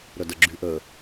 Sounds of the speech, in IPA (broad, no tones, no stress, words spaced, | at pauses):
ɾœdəɡ͡ǁyʔə